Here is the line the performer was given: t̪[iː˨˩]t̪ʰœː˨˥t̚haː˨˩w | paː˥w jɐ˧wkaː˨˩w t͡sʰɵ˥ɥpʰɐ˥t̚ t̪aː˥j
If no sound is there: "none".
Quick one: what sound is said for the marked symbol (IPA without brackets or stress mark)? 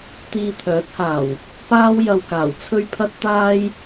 iː˧